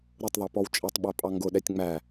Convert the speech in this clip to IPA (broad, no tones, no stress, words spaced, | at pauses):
ɾʊtˤðˤɛpɔw t͡ʃʼɛtˤɓæpʼɑ ŋɡʊɗɛtʲ ŋ͡mæ